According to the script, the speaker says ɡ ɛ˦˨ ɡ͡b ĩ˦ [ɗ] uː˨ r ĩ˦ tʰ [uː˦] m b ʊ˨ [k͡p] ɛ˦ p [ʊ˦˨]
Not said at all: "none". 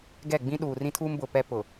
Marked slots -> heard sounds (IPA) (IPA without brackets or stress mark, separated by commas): ɗ, uː˦, p, ʊ˨